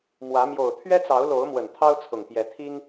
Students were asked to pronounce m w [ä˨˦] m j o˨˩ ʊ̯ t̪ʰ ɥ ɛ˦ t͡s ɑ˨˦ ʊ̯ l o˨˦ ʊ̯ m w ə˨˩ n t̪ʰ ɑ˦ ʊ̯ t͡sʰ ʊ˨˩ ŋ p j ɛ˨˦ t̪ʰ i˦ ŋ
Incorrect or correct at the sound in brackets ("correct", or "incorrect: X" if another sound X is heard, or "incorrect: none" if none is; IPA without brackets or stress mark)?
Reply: correct